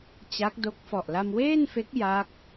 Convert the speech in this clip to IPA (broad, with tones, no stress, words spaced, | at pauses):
t͡ɕa˦˥k̚do˦˥k̚fɔ˨˩ʔ la˧mweː˥˩nfe˦˥k̚ ja˦˥k̚